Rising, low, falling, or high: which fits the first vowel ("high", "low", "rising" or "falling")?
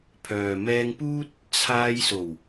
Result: low